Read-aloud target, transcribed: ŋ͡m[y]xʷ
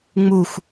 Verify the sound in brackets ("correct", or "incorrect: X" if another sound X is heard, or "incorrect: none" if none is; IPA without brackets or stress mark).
incorrect: u